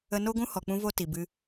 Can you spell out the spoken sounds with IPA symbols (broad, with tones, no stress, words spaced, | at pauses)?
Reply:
ə˧no˦ɡʷũ˦ hɔ˨k͡pũ˧ vo˧ ti˨ bɨ˧